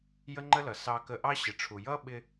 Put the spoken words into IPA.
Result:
j ə˥ ŋ͡ǃ ə˥ l ʌ˩ s ɑ˧ k ə˧ ʔ ɑ˥ ɕ ɪ˩ ʈ͡ʂʰ u˩ j ʌ˥ ɓ ɪ˧

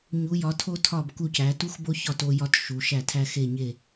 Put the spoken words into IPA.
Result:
ɲ u˨˦ j ɒ˨˦ tʰ o˦ tʰ ɒ˦˨ b k u˦˨ c æ˨˦ t u˦ x b o˦ ç ɒ˦˨ t o˦ j ɒ˦ t ʃ u˨˦ ʃ æ˦˨ tʰ æ˦ x e˦˨ ɲ e˦˨

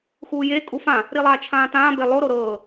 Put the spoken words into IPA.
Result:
x uː j e kʼ u f ã | ɾ i lˠ aː t͡ʃʰ ãː t ãː b e lˠ o ɾ o ɾ ɤː

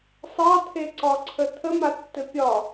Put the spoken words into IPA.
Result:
sˤ ɑ t̪ʰ e ǀ ɒ ǀʰ ə t̪ʰ ə m a tː ɘ pʲ ɒ

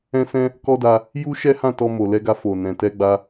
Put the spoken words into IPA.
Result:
ɛ̃˦ s ɛ̃˦ | k ɔ˦ d a˧ | j u˦ ʃ ɛ˦ h ã˦˨ t ɔ˧ m o˨ l ɛ˧ ɡ a˧ f o˨ n ɛ̃˨ t ɛ˧ ɡ͡b a˧

